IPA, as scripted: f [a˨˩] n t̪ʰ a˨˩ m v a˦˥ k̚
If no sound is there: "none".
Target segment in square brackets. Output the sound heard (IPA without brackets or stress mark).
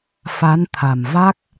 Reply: a˧˥